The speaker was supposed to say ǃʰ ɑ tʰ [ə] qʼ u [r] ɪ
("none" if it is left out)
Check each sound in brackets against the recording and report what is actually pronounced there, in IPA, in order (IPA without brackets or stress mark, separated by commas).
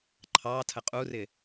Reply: ə, r